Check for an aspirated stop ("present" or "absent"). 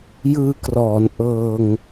absent